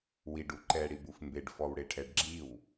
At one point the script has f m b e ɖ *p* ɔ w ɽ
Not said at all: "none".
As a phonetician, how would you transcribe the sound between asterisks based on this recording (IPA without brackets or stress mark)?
f